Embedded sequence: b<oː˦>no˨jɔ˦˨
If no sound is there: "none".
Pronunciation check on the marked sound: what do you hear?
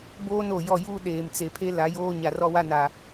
oː˦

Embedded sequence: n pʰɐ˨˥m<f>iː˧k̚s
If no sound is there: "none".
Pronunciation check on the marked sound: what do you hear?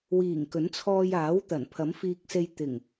f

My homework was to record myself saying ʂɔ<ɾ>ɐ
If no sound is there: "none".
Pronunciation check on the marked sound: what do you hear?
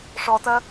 t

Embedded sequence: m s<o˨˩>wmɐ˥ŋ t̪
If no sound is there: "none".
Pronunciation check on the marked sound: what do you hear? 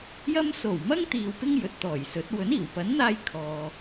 o˨˩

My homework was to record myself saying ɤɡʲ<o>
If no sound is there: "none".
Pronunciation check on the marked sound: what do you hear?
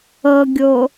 o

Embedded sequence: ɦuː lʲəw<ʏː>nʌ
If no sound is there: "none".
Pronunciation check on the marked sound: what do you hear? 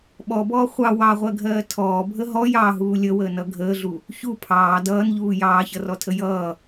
əː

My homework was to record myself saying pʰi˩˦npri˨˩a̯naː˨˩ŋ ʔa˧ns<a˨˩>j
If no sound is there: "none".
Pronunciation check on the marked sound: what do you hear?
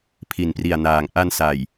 a˨˩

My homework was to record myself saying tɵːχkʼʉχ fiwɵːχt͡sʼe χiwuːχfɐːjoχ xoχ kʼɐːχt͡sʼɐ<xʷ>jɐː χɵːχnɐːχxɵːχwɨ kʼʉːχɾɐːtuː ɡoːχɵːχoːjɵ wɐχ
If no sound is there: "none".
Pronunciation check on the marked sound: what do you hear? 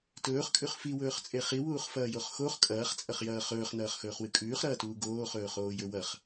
χ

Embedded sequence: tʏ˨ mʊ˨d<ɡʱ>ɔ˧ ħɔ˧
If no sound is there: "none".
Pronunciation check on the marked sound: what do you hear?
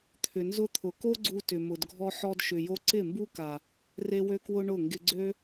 ɡʱ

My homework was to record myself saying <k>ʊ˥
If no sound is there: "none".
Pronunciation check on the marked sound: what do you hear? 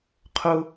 qʰ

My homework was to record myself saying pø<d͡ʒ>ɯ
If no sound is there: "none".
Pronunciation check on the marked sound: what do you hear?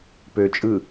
t͡ʃʼ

